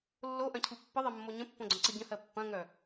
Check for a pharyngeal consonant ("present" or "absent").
absent